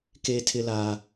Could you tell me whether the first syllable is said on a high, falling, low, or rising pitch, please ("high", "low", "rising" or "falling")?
high